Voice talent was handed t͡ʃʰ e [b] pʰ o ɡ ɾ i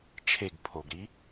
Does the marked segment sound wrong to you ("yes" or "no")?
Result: yes